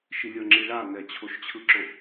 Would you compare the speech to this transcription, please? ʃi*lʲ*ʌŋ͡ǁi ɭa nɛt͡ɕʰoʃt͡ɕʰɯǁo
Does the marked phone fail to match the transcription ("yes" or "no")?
no